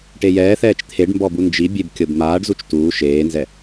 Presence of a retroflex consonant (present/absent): present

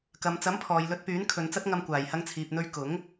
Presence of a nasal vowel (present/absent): absent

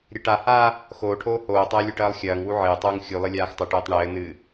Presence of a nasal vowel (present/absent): absent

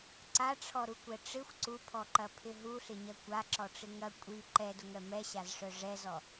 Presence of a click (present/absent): present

